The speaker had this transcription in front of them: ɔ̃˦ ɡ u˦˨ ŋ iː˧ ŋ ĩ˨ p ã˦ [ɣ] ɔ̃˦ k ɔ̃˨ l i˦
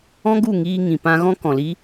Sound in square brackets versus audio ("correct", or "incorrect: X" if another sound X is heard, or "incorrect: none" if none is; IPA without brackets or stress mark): correct